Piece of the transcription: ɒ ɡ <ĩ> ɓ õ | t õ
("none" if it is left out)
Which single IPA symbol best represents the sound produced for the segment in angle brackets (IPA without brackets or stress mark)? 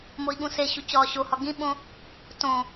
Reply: ĩ